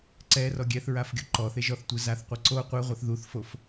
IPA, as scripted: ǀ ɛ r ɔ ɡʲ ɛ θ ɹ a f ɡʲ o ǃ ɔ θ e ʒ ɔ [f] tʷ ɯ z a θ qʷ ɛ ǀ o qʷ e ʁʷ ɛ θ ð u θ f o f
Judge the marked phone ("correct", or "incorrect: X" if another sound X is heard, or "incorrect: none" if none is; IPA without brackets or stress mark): incorrect: θ